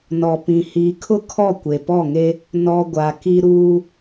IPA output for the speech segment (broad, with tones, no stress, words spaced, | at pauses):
nɔ˨pĩ˨hiː˨kʰʊ˦ kʰɔ˦˨kʷe˨pɔ˦˨ŋe˦ | nɔ˨ ɡʷa˨ki˦ ɾuː˦